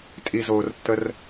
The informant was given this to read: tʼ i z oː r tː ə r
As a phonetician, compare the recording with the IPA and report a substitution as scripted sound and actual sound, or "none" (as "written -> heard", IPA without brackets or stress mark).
none